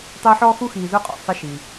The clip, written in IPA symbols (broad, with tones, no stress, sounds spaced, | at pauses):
tˤ ɪː˦ ħ ɔ˥ x u˥ x iː˨ z ʊ˥ qʼ ɔ̰˩ sˤ ɪ˦ ʃ i˩